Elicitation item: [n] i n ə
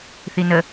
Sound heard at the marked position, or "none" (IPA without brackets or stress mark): θ